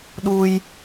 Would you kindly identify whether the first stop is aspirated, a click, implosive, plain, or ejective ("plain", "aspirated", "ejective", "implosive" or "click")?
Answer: implosive